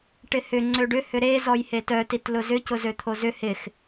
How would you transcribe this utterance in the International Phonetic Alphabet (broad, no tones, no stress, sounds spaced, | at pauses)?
ʈ ɪ h ʏ ŋ͡ǀ ø ɖ ʏ h ʏ ɾ e z ɔ j h e t œ t i t l ʊ z ʏ c ʊ z ø t̪ʰ o z ʏ h ɪ x